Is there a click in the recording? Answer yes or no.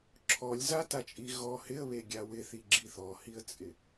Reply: yes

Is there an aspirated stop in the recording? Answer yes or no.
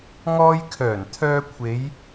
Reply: yes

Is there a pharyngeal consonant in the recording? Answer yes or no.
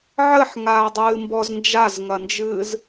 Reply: yes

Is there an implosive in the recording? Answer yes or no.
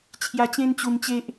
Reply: no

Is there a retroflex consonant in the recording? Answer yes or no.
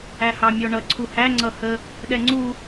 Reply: yes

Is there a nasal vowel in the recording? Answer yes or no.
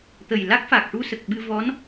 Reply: no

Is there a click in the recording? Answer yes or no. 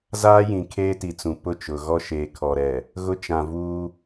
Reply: no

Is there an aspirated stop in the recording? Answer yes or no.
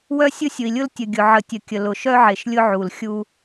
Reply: no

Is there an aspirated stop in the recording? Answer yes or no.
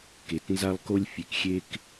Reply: no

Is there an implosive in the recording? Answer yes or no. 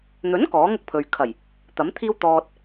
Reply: no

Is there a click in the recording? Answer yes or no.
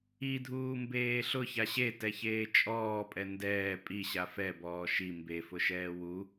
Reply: no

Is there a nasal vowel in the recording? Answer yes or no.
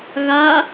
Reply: no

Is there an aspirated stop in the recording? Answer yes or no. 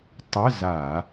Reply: no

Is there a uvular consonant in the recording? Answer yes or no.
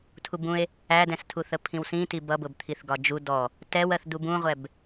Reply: yes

